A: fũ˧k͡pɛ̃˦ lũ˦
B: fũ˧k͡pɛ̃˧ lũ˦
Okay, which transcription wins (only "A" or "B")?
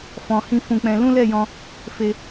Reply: B